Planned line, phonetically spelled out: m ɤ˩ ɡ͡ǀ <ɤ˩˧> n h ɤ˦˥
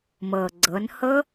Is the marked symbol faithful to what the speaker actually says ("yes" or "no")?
yes